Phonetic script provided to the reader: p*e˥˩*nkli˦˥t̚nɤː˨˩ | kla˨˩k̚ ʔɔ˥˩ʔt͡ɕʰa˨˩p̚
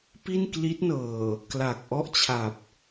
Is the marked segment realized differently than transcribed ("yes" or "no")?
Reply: yes